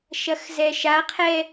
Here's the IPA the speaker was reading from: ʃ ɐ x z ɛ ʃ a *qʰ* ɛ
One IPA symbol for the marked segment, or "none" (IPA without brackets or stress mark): qʰ